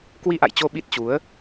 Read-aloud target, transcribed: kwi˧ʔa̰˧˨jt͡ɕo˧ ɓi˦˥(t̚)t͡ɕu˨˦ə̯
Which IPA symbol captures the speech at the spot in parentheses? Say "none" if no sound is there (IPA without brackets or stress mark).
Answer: t̚